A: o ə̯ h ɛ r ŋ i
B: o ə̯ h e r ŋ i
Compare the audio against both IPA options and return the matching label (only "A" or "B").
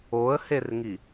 B